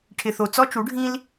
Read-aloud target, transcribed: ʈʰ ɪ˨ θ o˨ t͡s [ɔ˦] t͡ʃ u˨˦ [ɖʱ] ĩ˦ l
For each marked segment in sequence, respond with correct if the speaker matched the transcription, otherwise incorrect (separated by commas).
correct, correct